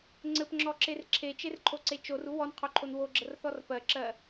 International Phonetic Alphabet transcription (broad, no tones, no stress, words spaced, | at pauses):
ŋ͡ǀɘpŋ͡ǁɔǁer ǁʰet͡ʃerǃʰoǀe t͡ʃoru wɔnqʰoǃʰon woɡ͡ǁərθɔr pɜǁɜ